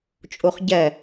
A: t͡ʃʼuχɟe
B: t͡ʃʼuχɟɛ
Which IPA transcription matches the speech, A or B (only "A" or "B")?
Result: B